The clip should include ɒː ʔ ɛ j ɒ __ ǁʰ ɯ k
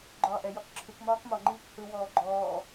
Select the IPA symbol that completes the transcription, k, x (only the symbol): k